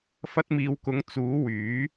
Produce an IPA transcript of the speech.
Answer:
f ɐ˧ t̚ m iː˨˧ w k ʊ˨˥ ŋ t͡s uː˨˥ w yː˨˥

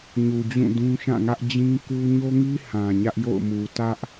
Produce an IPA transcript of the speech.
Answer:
ɲ u˨ d͡ʑ ũ˦˨ d ũ˦ ʃ ã˦˨ ŋ ä˦ ʔ d͡ʑ ĩ˦ k u˦ ɲ o˦ ŋ i˦ h ã˨ ɲ ä˦ ʔ j o̰˦˨ ʊ̯ m u˨ t ä˦ ʔ

